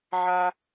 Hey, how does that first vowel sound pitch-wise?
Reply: high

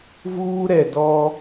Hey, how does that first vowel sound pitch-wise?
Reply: high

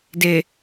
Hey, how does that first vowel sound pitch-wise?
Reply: low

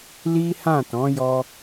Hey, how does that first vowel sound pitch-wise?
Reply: high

